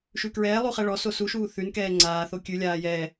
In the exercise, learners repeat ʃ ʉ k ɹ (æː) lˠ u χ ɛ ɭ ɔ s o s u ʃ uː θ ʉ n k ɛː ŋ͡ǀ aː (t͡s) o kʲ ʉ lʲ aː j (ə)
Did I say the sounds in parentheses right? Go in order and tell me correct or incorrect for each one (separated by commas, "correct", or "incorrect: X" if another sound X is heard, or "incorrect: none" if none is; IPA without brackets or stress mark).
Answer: incorrect: ɛː, incorrect: θ, incorrect: ɛ